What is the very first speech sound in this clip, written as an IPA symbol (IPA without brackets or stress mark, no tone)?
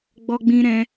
ɡ͡b